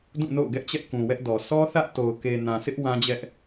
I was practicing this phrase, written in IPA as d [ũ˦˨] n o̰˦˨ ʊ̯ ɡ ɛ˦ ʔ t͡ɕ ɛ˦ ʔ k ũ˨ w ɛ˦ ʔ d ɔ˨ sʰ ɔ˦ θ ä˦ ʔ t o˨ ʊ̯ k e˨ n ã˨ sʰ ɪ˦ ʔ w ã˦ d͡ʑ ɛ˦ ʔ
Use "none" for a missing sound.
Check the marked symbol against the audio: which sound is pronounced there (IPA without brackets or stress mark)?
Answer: ũ˦˨